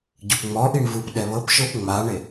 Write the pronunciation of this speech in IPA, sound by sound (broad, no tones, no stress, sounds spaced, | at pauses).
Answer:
ɟ ɯ p ŋ͡m ɔ ʔ i ɳ v ɯ p ɗ ɛ β ɤ p ʃ ɤ p ŋ͡m a ɳ e